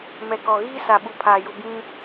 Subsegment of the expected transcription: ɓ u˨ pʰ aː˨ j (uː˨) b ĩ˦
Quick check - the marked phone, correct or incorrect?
incorrect